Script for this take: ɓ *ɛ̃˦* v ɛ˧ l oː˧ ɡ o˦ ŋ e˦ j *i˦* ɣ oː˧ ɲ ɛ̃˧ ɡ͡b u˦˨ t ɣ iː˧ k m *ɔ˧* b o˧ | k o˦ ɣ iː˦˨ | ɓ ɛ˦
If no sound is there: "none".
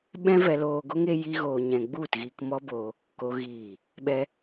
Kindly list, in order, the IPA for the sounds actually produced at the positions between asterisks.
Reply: ɛ̃˦, i˦, ɔ˦

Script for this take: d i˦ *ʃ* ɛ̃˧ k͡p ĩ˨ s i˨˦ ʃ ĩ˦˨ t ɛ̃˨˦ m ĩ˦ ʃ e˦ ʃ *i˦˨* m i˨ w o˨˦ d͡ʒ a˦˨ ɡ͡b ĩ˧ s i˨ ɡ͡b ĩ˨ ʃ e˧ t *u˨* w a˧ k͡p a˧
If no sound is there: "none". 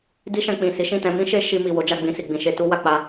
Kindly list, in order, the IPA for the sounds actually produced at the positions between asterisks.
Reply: ʃ, i˧, u˦

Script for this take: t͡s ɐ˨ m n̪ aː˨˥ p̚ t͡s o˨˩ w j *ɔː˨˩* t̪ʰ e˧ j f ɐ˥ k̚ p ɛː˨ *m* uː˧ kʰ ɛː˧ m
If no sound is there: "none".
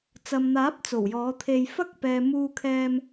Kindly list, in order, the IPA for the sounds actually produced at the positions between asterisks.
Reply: ɔː˨˥, m

